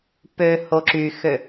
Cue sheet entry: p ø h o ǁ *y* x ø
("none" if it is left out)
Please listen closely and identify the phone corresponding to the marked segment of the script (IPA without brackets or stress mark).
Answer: y